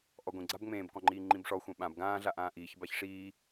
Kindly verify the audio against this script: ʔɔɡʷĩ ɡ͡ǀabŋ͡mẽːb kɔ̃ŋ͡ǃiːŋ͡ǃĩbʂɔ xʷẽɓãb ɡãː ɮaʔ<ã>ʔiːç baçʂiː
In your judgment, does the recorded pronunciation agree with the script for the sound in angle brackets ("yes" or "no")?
no